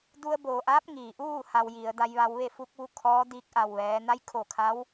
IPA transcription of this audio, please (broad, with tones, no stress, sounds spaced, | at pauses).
d u˧ ə̯ b oː˩ ʔ aː˧˥ p̚ ŋ iː˩ ʔ uː˥˨ h a˧ w j i˩˧ ə̯ d a˧ j ʋ a˧ w ʋ e˥˨ f u˧ k̚ ʋ u˧ kʰ ɔː˧˥ d iː˧ k̚ ʔ a˧˩ w ʋ ɛː˩˧ n a˧˥ j kʰ o˧˩ kʰ a˧˥ w